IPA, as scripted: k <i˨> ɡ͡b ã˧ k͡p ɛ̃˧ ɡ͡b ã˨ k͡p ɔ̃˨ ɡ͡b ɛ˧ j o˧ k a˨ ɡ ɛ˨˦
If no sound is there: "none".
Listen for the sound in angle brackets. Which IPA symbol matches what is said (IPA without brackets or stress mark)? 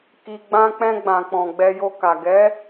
i˨